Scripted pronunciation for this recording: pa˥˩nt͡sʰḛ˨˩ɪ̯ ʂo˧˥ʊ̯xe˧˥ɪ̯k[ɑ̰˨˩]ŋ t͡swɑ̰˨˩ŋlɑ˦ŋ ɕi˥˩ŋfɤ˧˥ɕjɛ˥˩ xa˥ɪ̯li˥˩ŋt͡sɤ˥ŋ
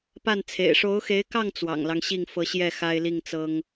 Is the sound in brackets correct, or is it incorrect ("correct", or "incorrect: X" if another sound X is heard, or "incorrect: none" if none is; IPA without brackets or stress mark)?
incorrect: ɑ˥˩